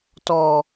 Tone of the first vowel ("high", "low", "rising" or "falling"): low